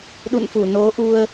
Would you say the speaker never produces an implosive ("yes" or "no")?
no